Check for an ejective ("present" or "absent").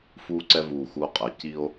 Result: present